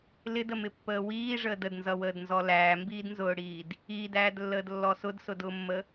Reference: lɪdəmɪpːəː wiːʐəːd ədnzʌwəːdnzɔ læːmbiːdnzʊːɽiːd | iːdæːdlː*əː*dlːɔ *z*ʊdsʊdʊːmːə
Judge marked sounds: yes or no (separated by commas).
yes, no